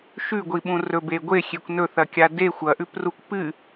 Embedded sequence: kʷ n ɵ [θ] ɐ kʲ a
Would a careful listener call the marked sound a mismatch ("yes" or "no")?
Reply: no